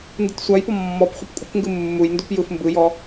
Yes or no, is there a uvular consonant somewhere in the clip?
yes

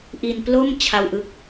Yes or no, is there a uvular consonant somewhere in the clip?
no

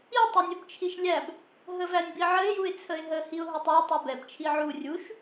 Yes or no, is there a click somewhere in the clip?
no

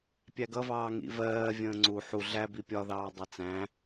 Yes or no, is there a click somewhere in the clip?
yes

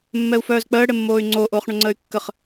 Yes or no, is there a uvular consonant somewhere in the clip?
yes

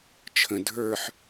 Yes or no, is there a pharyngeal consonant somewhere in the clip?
yes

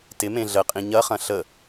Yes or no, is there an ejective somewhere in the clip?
yes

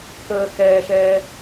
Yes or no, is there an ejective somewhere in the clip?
no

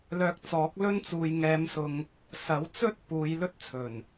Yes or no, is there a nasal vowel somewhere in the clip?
no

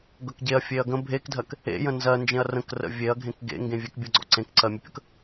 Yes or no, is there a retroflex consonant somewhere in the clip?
no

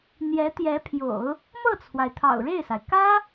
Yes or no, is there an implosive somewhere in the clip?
no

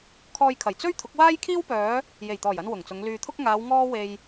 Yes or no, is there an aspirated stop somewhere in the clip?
yes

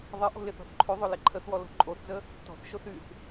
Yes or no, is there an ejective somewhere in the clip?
yes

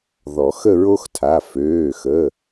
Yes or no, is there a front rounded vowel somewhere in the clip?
yes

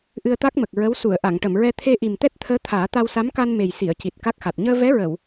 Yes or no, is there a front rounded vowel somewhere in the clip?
no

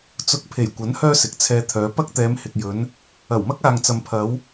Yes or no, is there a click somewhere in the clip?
no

